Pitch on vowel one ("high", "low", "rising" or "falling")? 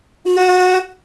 high